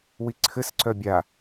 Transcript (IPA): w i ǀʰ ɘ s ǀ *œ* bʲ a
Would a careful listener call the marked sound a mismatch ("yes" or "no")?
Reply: no